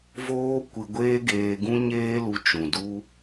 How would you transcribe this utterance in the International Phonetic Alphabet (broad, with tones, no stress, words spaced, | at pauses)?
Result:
voː˦kʷɨ˧ɡʷeː˦ ɡeː˧ɡũ˦ɲeː˦lu˧ t͡ʃũ˨ du˧